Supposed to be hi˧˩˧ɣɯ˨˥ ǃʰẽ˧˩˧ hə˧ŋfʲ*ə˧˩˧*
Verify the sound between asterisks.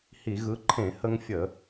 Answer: correct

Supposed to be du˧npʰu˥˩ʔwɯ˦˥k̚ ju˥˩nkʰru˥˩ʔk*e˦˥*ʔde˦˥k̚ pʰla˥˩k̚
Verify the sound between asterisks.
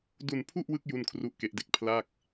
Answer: correct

